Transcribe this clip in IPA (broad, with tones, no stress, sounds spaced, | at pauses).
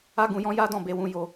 a˦ ɡ ũ˧ j ɔ̃˦ j a˦ d ɔ̃˦˨ b e˧ w ũ˧ j o˧